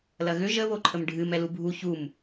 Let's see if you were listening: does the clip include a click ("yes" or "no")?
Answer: yes